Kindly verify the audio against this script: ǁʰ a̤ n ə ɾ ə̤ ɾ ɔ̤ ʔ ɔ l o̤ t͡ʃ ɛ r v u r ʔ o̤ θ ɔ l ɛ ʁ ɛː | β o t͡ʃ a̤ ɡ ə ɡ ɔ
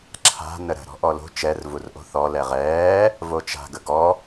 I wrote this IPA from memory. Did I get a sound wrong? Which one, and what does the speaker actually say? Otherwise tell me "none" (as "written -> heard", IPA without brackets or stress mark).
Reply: β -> v